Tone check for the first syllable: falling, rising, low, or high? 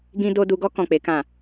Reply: high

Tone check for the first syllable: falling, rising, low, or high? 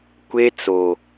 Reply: high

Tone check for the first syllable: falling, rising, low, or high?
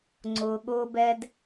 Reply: low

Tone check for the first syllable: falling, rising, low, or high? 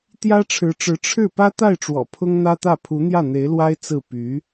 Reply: high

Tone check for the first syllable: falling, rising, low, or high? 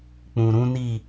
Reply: low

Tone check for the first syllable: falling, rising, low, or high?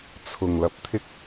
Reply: low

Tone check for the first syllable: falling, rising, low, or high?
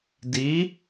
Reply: rising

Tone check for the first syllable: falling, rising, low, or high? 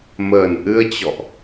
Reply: low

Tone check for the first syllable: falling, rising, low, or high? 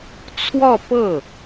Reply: falling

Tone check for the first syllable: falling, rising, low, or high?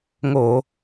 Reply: low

